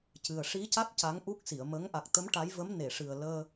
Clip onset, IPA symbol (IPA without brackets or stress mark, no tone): c